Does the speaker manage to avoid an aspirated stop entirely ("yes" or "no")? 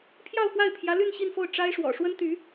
no